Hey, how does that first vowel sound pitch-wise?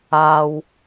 low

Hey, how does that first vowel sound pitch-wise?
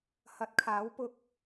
rising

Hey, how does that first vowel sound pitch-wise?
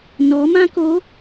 rising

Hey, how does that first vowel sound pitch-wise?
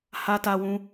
high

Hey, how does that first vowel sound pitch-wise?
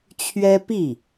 high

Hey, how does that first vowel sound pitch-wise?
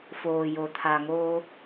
low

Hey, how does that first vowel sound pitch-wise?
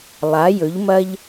rising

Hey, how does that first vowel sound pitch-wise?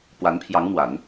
rising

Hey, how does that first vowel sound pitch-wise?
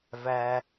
low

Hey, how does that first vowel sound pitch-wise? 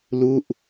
falling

